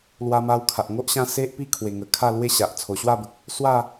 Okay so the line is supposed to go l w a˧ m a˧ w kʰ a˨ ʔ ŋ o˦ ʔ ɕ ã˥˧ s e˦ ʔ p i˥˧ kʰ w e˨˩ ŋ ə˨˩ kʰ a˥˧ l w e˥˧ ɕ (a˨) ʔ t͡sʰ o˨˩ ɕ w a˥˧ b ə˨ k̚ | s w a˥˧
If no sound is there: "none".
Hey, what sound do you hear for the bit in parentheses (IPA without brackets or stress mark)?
a˨